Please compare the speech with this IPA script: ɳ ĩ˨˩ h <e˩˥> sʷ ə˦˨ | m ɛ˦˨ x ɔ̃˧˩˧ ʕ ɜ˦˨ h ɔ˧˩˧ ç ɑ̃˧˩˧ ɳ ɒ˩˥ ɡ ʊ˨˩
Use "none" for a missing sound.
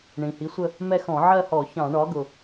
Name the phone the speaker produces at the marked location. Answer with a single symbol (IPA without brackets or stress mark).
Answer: i˩˥